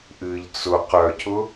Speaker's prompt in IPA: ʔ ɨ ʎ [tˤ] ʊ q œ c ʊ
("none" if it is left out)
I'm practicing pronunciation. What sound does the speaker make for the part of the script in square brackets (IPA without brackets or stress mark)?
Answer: t͡s